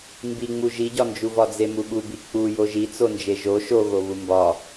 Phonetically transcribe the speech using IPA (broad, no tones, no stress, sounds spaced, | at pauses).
m b i ŋ͡m u ʒ i ɟ ɒ n d͡ʒ u v ɒ d͡z e m u ɓ u b i k͡p u j o ʒ i t͡s o n d͡ʒ e ʒ o ʃ o ɣ o β u m b ɒ